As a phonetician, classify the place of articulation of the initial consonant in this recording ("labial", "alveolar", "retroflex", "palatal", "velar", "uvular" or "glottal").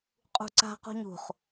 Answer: uvular